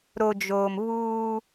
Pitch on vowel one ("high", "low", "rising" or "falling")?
low